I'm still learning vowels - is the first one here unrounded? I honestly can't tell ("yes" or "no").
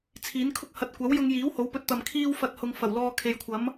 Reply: yes